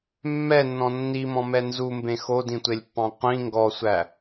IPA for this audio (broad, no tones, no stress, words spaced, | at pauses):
mːɛnːɔ̃ nːimɔ̃mɛ nzumbẽ xodĩtʷelʲpːɑ̃ qʷĩ ŋɡɔsʷæ